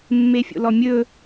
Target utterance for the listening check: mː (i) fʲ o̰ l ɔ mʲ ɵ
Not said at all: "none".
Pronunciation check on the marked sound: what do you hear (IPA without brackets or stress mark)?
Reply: e